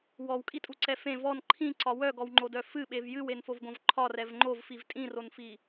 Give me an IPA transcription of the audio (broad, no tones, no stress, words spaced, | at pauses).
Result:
wɔwkʼitʼuǀɛ fẽ vɔn ǃʰĩǀɒ wœɡɔwŋ͡ǃodœ fɨɓev jɨwenfovɡõv ǃʰɒrɛv ŋ͡ǃovfiv tʼĩronfi